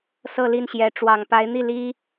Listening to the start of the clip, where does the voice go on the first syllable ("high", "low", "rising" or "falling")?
falling